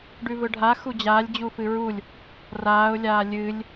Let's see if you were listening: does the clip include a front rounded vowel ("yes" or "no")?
no